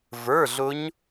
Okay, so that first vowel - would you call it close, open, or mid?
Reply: mid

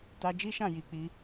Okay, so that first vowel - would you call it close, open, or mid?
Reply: open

